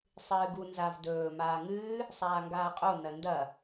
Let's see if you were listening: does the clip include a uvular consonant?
yes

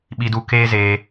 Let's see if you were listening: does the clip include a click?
no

